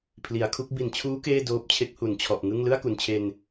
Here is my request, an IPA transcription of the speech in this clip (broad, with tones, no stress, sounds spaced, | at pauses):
pʰ l i˩˦ a̯ kʰ u˦˥ k̚ b i˨˩ n t͡ɕʰ uː˦˥ k eː˥˩ d oː˦˥ p̚ t͡ɕʰ e˦˥ k̚ h u˨˩ n t͡ɕʰ ɔ˨˩ ʔ ŋ ɯ˥˩ ŋ l ɯ˥˩ a̯ k u˨˩ n t͡ɕʰ e˧ n